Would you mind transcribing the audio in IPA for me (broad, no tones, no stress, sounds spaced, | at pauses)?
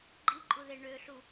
ɡ͡ǃ i ǃʼ u ð e ɳ ø ɬ u